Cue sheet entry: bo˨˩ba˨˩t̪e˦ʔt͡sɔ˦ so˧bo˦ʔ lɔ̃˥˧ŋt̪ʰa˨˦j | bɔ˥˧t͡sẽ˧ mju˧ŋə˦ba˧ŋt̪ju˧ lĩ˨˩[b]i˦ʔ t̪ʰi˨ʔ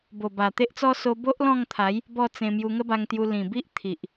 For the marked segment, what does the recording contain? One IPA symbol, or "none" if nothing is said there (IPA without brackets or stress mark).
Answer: b